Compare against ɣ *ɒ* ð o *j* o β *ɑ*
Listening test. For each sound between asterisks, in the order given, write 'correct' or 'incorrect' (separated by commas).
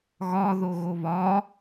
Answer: correct, incorrect, incorrect